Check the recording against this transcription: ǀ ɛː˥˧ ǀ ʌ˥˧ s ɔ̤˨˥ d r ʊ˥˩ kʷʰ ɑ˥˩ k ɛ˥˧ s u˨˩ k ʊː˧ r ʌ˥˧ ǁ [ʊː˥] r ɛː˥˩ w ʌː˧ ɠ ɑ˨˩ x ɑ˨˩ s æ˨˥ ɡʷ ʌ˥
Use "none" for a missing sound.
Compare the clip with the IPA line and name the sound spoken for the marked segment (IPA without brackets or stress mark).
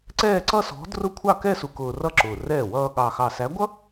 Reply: ʊː˨˩